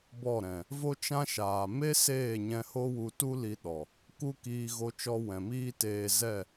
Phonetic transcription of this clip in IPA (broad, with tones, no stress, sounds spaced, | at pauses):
b ɔ˦˨ ɾ ɛ̃˨ | v o˦ t͡ʃ ã˦ ʃ aː˨ m e˦ s eː˦˨ ɲ ɛ̃˧ h o˦ w u˧ t u˦ l i˧ ɗ ɔ˨ | k u˦ k iː˧ ɣ o˧ t͡ʃ ɔ˧ w ɛ̃˨ m iː˦ t eː˧ z ɛ˦˨